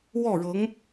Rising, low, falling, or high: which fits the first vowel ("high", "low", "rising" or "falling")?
falling